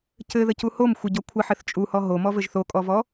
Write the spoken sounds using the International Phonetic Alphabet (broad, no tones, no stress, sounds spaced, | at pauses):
c ɘ ð ə c u h o m xʷ ɘ ɟ ɔ kʷʰ ə ħ ɘ θ t͡ʃʼ u h ɔ ɦ o m ɔ v ɘ ʒ θ o kʼ ɔ v ɔ